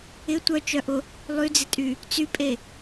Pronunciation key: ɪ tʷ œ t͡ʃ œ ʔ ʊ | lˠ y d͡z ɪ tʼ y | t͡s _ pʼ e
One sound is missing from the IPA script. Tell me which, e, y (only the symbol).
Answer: y